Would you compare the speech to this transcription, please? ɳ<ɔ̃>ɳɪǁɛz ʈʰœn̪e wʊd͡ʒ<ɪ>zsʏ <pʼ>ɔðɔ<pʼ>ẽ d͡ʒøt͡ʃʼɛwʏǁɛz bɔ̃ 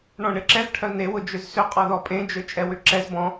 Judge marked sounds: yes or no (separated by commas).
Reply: yes, no, no, yes